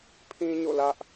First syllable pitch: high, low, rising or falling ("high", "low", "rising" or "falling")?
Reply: high